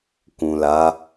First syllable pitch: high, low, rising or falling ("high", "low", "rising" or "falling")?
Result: low